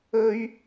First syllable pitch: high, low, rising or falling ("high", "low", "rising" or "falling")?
high